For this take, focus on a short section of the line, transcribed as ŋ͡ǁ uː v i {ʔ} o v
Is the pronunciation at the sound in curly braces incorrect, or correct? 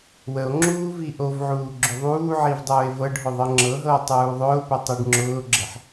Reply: correct